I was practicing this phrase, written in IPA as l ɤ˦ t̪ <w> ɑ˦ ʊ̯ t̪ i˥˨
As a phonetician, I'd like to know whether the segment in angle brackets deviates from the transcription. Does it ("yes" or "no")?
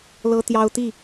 yes